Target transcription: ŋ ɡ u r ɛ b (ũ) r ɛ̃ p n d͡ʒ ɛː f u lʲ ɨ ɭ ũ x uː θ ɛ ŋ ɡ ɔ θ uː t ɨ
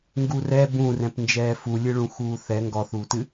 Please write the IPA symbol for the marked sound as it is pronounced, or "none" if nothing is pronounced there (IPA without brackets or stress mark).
ũ